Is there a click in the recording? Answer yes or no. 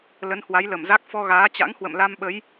no